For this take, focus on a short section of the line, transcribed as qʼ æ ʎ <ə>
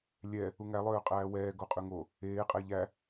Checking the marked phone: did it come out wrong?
yes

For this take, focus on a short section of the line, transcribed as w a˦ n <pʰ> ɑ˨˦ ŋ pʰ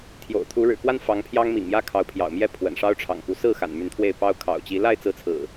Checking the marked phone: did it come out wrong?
yes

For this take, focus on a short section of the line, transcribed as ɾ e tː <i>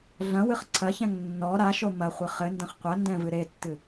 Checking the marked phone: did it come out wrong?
yes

